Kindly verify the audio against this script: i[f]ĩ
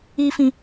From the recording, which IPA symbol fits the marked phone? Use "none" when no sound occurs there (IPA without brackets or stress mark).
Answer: f